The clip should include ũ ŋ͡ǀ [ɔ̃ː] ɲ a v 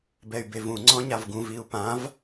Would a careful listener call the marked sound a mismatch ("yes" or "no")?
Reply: yes